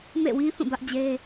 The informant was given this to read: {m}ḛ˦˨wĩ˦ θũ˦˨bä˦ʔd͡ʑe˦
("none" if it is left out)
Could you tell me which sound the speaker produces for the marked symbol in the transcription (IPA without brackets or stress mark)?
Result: m